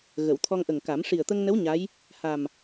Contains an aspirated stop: yes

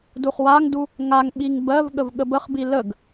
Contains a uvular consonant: yes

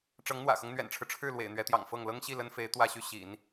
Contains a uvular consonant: no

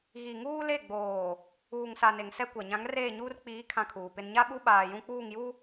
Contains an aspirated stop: yes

